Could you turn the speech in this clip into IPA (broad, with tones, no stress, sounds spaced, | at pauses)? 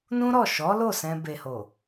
n ũ˦ ɾ ɔ˦˨ ʃ ɔ˨˦ l o˦˨ s ɛ̃˧ b e˨ h o˨